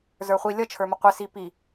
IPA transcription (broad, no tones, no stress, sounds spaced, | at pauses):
z ə˞ χʷ i lʲ ʌ t͡ʃʰ ə˞ m ə qʷ ɪ s i p i